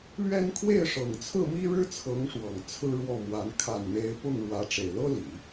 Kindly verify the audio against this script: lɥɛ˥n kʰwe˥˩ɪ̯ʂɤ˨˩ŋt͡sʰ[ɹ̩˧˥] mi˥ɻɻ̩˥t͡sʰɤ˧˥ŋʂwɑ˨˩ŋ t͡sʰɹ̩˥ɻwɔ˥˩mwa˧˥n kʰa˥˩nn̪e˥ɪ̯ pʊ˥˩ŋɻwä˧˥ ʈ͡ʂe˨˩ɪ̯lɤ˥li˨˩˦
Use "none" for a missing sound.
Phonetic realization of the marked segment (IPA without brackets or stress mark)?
ɹ̩˥˩